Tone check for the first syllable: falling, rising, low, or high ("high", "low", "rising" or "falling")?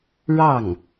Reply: falling